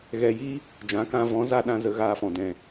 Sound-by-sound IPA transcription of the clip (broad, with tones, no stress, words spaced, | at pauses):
ɣɛ˧ji˦ | d͡ʒã˨˦kã˧vɔ̃˨˦ za˧ ɗã˧ zə˧ɣaː˧fɔ̃˨ dɛ̃˨